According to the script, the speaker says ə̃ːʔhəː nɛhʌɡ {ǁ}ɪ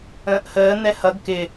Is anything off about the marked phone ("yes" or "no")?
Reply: yes